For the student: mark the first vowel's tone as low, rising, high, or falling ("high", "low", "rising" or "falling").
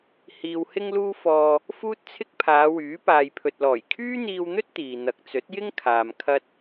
low